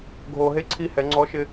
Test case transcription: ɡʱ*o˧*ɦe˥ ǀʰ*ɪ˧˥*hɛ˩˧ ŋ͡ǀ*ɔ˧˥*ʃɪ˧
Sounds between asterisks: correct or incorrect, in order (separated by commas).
correct, incorrect, correct